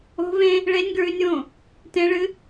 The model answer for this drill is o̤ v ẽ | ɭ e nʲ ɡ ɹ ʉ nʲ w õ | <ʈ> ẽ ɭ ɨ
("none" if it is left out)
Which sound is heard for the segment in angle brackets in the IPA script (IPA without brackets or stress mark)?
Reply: t